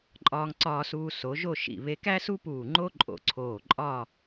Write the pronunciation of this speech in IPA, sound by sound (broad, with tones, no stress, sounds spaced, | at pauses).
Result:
ǃʼ ɒː˧ ŋ ǀ ɒː˧ s uː˧ s o˩˧ ʒ o˥˧ ʃ ḭ˧˩ β e˧ k æ˥ s u˥ p uː˧˩ ŋ͡ǃ o˥ ǃʼ o̰˧˩ ǀʰ oː˧˩ ǃʼ ɒ˥˧